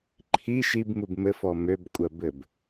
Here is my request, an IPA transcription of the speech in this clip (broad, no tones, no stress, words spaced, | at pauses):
ǃʰi ʃibmub mɘfɔ møbkʷʼɜbɘb